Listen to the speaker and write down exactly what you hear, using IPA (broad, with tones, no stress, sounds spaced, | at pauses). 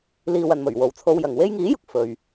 l iː˨ w ɐ˨ n m ɵ˨˩ ɥ w o˨ w t͡sʰ o˧ w j ɐ˨ ŋ w e˥ j ŋ iː˨˥ j ʊ˨ k̚ f ɵ˨ ɥ